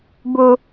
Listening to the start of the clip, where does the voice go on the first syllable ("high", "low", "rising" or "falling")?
high